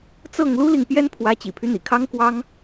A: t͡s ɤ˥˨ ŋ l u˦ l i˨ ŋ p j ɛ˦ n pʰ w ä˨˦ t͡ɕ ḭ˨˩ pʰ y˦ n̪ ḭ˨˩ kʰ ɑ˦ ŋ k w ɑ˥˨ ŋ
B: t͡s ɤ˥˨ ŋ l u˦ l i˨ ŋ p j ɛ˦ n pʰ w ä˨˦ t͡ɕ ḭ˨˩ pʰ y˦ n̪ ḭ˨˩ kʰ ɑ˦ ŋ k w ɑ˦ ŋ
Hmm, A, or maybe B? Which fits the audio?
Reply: B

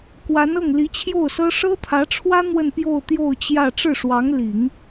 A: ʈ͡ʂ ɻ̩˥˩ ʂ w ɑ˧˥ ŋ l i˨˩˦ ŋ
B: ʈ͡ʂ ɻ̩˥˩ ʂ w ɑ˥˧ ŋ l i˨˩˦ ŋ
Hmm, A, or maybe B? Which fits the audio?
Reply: A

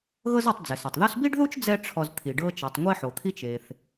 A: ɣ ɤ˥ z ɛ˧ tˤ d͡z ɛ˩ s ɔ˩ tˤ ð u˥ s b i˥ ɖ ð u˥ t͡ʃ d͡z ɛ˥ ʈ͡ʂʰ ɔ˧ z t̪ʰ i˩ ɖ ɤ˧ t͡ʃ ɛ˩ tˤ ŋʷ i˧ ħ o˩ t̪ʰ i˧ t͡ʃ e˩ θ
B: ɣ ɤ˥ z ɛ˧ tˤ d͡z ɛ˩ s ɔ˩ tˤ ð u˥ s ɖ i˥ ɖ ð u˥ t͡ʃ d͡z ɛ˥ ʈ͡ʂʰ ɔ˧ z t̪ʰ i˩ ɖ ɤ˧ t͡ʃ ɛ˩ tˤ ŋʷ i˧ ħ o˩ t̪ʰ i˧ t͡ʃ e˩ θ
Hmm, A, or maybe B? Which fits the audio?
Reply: A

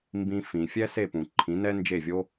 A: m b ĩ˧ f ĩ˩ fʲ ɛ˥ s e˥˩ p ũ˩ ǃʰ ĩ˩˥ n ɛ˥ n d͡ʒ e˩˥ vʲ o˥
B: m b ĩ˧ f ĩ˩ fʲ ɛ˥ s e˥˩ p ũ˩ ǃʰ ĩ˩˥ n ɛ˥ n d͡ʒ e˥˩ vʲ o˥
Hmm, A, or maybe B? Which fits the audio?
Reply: B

